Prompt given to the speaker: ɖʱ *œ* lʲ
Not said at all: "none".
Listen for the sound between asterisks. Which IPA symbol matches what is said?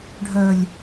œ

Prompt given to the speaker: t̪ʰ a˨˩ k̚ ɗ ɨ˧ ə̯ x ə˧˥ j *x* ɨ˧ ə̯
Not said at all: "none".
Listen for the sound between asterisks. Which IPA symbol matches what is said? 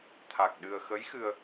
x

